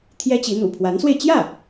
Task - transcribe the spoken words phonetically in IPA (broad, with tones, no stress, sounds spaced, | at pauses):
t̪ʰ j ɛ˥ t͡ɕ i˧˥ n̪ ṵ˨˩ pʰ w a˧˥ n s w e˧ ɪ̯ t͡ɕ j ä˥˩